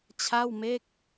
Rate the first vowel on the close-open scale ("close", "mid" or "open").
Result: open